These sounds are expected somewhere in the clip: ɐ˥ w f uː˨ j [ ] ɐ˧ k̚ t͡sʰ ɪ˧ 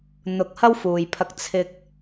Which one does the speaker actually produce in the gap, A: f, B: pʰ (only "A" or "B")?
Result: B